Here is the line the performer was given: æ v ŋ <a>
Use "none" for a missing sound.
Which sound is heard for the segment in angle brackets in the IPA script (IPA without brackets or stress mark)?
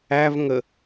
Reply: ə